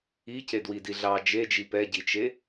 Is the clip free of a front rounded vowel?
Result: yes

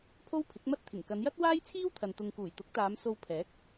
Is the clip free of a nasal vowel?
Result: yes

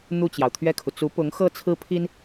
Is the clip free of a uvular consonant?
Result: yes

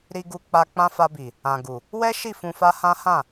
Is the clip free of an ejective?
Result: yes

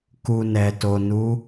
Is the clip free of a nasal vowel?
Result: yes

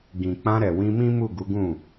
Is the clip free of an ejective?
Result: yes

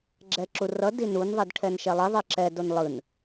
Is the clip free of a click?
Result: no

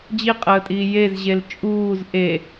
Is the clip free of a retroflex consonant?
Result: yes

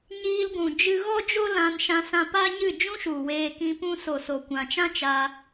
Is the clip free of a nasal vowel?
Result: no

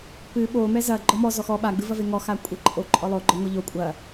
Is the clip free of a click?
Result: no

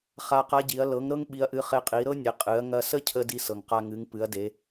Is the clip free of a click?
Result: yes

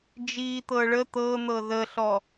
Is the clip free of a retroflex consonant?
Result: no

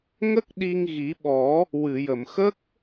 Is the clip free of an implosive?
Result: no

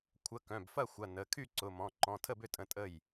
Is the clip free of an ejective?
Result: no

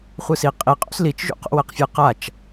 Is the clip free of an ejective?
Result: no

